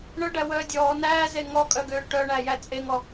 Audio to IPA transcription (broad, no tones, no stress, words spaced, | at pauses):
ɳœɖæwœː dʲɔː næːze ŋɔkʼœɡøː ʈœɳæjæ t͡sʼeŋɔ